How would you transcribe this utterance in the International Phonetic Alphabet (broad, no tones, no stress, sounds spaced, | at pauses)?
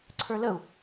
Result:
ǀʰ ə˞ l ə u̯